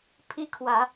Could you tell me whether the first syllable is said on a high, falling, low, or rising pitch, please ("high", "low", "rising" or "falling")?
high